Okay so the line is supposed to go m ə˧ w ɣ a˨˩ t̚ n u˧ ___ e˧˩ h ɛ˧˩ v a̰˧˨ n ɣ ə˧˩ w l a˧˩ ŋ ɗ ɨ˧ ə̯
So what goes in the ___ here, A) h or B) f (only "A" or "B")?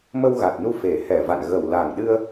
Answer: B